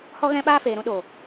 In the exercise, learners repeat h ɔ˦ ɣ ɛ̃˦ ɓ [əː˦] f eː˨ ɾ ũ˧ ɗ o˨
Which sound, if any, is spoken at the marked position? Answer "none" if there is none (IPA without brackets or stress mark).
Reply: aː˦